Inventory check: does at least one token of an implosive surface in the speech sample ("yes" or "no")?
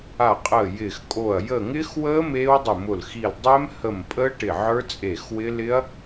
no